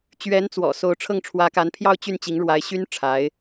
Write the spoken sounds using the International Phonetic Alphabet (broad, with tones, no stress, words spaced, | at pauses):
t͡ɕɥɛ˧˥nt͡swɔ̰˨˩ so˧˥ʊ̯ʈ͡ʂʰɤ˥˩ŋ ʈ͡ʂʰwä˧˥ka˧˥npʰjɑ˥˧ʊ̯ t͡ɕy˥˩nt͡ɕi˧˥ŋ ɻwa˧˥ɪ̯ɕy˥n ʈ͡ʂʰa˧˥ɪ̯